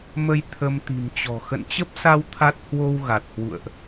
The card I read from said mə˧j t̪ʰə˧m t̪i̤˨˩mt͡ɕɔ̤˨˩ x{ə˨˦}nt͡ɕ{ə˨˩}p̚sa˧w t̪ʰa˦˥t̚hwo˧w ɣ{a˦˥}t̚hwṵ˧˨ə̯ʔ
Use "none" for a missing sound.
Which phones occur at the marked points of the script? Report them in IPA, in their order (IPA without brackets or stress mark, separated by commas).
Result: ə̰˧˨, ə˦˥, a˨˩